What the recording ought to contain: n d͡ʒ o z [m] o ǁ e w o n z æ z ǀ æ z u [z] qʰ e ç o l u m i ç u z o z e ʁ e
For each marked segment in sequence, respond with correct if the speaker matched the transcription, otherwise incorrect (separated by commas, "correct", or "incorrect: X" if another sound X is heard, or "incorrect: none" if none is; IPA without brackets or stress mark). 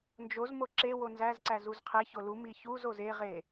correct, correct